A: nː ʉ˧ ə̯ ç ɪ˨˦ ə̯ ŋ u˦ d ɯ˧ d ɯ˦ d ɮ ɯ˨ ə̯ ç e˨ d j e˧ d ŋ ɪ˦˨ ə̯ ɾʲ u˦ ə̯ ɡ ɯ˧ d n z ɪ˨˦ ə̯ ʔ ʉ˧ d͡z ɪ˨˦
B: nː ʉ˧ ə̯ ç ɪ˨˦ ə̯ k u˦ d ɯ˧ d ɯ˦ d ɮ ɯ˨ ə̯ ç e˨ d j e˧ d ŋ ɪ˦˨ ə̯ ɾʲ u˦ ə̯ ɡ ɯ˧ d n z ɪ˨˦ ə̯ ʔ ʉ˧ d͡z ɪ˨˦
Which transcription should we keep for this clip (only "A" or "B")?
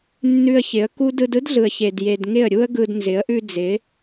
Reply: B